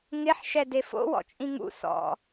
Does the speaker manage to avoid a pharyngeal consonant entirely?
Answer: no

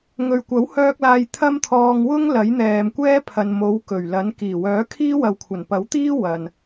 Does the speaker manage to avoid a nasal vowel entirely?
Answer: yes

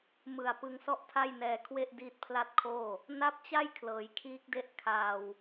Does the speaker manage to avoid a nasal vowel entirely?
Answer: yes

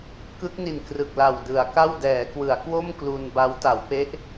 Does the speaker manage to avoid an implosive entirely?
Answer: yes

